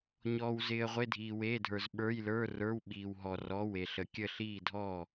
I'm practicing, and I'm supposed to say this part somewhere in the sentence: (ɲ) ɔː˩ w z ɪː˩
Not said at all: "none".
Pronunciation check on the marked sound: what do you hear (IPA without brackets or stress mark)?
ɲ